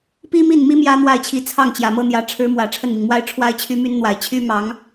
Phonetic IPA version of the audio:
pi˥mi˥˩nmi˥ mjä˥n̪wa˥˩ɪ̯t͡ɕʰi˧˥t͡sʰɑ˥˩ŋ t͡ɕjä˨˩mɤ˥n̪jä˧˥ ʈ͡ʂʰɻ̩˧˥mwä˨˩ ʈ͡ʂʰə˥˩nmi˩ŋmwa˥ɪ̯ ʈ͡ʂʰwa˥ɪ̯t͡ɕʰy˥my˥nn̪wa˨˩ɪ̯ t͡ɕʰy˥mɑ˧˥ŋ

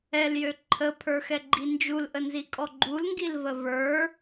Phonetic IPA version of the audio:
ɛljø ǃʰəpʰə˞xɛɡ͡ǃi nd͡ʒulʔənzikʼɔ ɡ͡ǃulŋɡilvə və˞

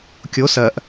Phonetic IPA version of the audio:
kʲo sɜʔ

